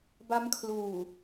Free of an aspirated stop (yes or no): no